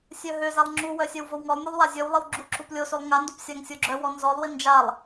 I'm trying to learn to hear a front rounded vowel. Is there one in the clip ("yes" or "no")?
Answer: yes